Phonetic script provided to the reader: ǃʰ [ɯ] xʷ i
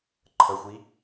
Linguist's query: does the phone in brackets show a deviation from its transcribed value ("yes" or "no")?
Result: yes